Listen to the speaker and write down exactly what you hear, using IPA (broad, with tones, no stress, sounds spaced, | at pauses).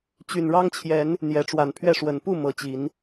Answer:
t͡ɕ y˨˩ n ɻ ɑ˦ ŋ t͡ɕʰ j ɛ˨˦ n | n̪ j ɛ˨˦ ʈ͡ʂ w a˨˩ n pʰ ɥ ɛ˥˨ ʂ w ə˨˩ n p u˥˨ m ɤ˨˦ t͡ɕ i˨˦ n